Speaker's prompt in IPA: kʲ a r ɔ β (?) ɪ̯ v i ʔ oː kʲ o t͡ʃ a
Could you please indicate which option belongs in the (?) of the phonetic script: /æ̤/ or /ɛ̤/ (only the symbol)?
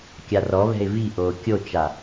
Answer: ɛ̤